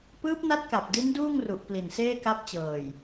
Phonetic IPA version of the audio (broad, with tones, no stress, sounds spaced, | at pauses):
p ɯː˦˥ p̚ n a˦˥ t̚ k a˨˩ p̚ d i˦˥ n d uː˥˩ ŋ r u˨˩ ʔ p l i˨˩ n s eː˥˩ k a˦˥ p̚ t͡ɕ ɤː˨˩ j